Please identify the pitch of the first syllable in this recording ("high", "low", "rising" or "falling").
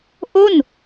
falling